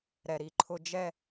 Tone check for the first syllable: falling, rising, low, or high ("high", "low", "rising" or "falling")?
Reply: low